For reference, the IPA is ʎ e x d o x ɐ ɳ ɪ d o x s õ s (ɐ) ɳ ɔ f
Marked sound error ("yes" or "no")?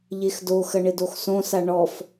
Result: yes